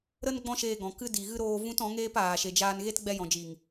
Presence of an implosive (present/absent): absent